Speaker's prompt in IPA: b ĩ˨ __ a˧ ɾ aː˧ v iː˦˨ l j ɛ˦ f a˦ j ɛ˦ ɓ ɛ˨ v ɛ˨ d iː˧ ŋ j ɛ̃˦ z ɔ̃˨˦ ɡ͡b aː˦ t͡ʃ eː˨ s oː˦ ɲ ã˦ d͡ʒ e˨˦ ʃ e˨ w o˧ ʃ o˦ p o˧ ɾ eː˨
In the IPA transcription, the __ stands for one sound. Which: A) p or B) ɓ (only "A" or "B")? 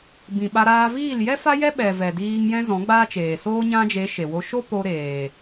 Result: B